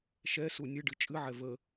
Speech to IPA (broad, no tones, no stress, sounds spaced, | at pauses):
ʃ ɛ s u nʲ ɨ ɖ ɨ t͡ʃʼ ɨ ʕ ɛ v ə